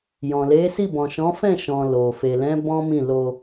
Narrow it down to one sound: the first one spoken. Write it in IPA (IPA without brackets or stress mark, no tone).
j